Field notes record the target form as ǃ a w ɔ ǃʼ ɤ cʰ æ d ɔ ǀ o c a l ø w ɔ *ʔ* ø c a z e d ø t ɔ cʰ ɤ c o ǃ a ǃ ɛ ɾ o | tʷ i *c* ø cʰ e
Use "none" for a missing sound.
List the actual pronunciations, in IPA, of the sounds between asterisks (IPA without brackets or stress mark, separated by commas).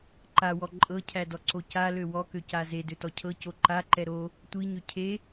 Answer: k, ɲ